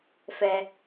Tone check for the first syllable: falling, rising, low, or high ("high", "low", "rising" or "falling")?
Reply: low